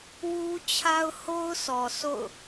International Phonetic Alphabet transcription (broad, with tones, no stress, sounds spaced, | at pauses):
w u˦ t͡ɕʰ a˦ ʊ̯ h o˦ ʊ̯ s ɔ˨ s o̰˦˨ ʊ̯